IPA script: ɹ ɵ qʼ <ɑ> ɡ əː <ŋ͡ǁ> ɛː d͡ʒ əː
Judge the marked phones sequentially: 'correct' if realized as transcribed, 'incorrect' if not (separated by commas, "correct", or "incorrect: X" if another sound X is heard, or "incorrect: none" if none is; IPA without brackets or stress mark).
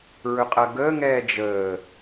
incorrect: ɐ, incorrect: ŋ